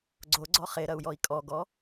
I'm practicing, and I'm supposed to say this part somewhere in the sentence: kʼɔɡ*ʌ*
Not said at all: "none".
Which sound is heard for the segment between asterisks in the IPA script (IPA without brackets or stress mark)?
ɔ